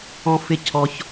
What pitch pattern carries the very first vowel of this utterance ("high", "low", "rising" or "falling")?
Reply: high